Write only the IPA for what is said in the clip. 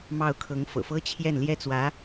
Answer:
m ɑ˥˩ ʊ̯ kʰ ɤ˧˥ ŋ f ɤ̰˨˩ f ɤ˥ t͡ɕʰ j ɛ˥˩ n l j ɛ˥ t͡s w ä˧˥

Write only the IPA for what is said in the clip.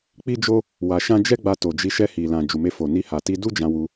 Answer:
k͡p i˦ d͡ʒ o˦ | w a˧ ʃ ã˦ d͡ʒ ɛ˦ ɡ͡b a˧ t o˨ d͡ʒ i˧ ʃ ɛ˧ h i˨ l ã˨ d͡ʒ u˨ m e˧ f o˨ n i˧ h a˨ t i˧ d u˦ d͡ʒ ã˧ w u˧

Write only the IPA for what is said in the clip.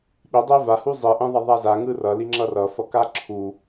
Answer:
ɓ i dˤ e v a h u zˤ i ʔ ẽ ðˤ ʌ ðˤ a z a ŋ ɯ r ʌ l i ŋ͡ǁ ʌ r ʌ f ʌ k a ǁʰ u

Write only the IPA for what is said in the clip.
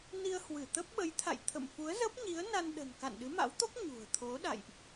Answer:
n i˧ ə̯ h w ɨ˧˩ t̪ ə˦˥ p̚ ɓ ə˨˦ j t̪ʰ a̰˧˨ j t̪ʰ ə̰˧˨ m f u˨˦ ə̯ z ə˦˥ p̚ ɲ i˨˦ ə̯ n a˧ n ɗ ə̤˨˩ n k a̰˧˨ n ɗ ɨ˨˦ m a̰˧˥ w t̪ o˦˥ k̚ ɲ ṳ˨˩ ə̯ t̪ʰ o˨˦ ɗ a̰˧˨ j ʔ

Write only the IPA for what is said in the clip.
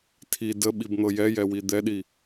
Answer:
tʰ i d ə ɓ i b n̪ ɤ j ɛ j ɛ w i d̪ ɛ ɗ i

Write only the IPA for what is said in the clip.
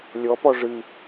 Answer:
lʲ ɔ p ɔ ʐ ɨ

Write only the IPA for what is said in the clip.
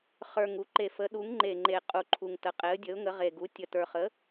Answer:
χ ə˞˨˩ ŋ u˩˥ ǃ e˨˩ f ə˩˥ ɗ u˩˥ ŋ ŋ͡ǃ e˨˩ ŋ͡ǃ e˨˩ qʼ u˨˩ ǃʰ u˨˩ ŋ t ə˩˥ qʼ e˩˥ ə̯ dʲ ə˩˥ ʊ̯ ŋ ə˩˥ ʁ e˨˩ ɡ u˩˥ tʲ ə˨˩ t ə˞˨˩ χ ə˩˥

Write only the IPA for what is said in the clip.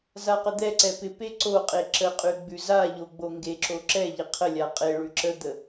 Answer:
z a q ə d̪ ɛ ǀ ɛ p ɪ p e ǀ o qʼ e ǁ ə qʼ ʉ ɡ͡b ʉ z a ʎ o ɡ͡b o ŋ ɡ e ǁ o ǁ ɛ ʎ ɪ qʰ ə lʲ a qʼ e ɭ ʉ ǁ ə d̪ ə

